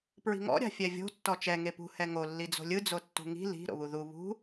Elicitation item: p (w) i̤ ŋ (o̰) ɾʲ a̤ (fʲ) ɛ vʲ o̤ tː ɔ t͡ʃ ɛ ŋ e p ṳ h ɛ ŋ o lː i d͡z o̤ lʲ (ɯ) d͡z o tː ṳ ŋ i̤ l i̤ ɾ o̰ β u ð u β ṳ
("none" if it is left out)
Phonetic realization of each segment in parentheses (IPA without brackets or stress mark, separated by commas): ɹ, ɔ̰, fʲ, ɯ